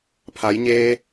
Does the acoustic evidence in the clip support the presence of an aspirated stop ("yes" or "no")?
yes